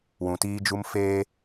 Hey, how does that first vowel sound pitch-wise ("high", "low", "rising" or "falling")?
low